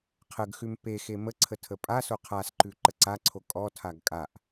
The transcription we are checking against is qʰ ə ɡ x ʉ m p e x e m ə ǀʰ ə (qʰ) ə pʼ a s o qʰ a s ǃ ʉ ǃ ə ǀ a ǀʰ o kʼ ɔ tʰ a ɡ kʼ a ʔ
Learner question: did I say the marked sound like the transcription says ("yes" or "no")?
no